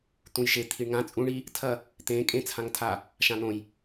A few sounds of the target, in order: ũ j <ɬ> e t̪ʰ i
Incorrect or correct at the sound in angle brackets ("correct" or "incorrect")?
incorrect